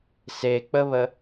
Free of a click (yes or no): yes